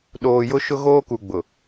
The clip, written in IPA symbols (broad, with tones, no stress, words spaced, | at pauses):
ɗoː˨jʊ˦ ʃʊ˦ɣoː˦ku˨ ɡ͡bʊ˨